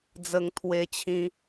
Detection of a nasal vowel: present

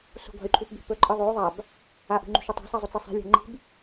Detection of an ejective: present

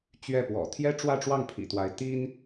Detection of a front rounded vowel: absent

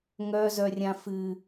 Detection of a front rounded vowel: present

